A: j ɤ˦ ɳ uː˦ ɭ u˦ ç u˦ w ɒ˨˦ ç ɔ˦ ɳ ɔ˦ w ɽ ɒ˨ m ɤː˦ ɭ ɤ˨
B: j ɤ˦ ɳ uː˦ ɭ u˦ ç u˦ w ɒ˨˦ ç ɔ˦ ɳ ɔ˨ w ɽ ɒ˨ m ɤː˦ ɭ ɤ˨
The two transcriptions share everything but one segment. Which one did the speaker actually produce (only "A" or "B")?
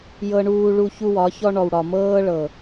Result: B